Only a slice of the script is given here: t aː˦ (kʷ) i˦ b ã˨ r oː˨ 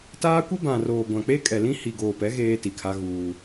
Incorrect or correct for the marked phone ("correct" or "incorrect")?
correct